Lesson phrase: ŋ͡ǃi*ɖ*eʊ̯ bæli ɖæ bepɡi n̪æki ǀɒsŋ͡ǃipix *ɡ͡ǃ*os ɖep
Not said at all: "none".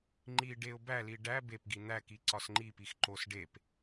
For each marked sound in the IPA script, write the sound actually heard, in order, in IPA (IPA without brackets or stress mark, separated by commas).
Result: ɖ, ǃ